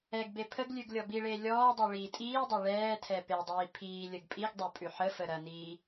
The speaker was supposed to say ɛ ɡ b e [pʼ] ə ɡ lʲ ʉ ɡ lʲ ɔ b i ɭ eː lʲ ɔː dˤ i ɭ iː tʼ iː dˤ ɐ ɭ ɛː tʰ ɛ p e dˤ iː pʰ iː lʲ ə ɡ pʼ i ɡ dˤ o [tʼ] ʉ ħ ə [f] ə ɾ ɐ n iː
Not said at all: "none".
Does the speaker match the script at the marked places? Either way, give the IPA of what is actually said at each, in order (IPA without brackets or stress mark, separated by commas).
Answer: pʰ, pʼ, f